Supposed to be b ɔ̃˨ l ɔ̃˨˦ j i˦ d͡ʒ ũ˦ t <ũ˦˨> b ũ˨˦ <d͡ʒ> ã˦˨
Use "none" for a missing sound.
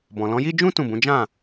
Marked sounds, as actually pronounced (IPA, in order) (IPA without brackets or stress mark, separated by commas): ũ˦˨, d͡ʒ